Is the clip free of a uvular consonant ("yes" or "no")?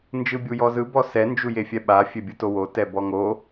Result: yes